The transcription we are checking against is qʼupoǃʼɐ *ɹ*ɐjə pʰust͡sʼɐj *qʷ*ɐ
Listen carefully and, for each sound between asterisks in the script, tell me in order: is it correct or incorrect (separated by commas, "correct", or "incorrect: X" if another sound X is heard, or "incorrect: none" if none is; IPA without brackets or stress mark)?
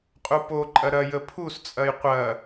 incorrect: ɾ, correct